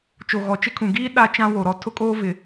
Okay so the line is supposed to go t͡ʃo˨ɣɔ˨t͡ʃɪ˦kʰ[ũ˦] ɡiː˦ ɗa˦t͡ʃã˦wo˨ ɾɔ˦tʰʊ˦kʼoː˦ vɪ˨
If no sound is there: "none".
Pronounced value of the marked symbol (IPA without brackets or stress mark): ũ˨